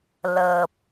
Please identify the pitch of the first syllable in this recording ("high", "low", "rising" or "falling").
low